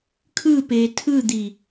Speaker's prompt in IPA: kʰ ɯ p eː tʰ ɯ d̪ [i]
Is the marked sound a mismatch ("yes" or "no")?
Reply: no